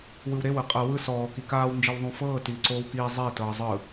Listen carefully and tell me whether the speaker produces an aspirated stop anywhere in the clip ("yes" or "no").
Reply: no